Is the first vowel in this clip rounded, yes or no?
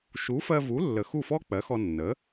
yes